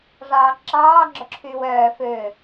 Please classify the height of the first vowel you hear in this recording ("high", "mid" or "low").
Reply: low